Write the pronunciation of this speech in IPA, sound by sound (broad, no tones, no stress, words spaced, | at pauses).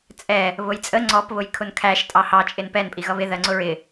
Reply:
t͡sʼɛ | βʊjt͡sʼə ŋ͡ǀɔp βʊjkʰʊnkʰæʃ tʼɑhɑ t͡ʃʼɪnpɛn pʼiɣʌβɪ ðɜŋ͡ǀʊɹɪ